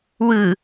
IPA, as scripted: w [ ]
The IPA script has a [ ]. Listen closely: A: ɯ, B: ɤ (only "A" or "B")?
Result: A